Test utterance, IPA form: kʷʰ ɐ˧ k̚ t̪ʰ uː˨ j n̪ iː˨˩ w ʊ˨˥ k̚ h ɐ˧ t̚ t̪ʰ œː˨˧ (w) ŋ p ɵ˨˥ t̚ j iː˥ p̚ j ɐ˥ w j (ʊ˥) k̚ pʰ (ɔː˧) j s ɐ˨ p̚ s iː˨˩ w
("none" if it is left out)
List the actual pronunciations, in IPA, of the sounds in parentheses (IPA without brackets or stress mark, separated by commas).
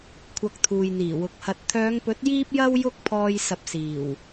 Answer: none, ʊ˥, ɔː˧